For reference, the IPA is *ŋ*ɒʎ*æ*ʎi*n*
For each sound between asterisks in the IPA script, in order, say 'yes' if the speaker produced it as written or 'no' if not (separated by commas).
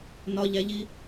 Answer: no, yes, no